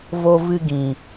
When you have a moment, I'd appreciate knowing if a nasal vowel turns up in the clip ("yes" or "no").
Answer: yes